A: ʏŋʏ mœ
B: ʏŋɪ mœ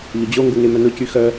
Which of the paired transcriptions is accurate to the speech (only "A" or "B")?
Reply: B